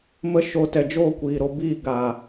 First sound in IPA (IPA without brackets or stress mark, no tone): m